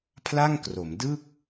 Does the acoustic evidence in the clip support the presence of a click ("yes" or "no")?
no